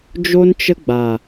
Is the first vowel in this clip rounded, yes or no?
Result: yes